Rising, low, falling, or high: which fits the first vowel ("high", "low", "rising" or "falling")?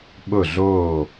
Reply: falling